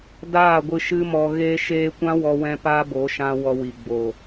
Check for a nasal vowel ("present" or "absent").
present